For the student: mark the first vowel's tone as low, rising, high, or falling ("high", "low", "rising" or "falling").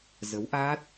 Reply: rising